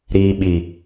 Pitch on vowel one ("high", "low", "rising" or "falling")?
low